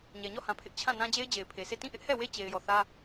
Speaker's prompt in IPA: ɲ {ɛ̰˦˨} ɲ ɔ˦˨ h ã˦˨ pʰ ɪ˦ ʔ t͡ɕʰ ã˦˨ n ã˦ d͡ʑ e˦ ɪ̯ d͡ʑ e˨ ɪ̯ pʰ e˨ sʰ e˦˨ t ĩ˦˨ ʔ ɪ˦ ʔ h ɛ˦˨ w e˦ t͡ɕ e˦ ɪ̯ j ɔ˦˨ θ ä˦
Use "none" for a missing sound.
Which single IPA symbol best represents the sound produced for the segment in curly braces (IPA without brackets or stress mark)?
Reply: ɛ˨